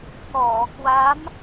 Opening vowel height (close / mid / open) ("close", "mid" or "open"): mid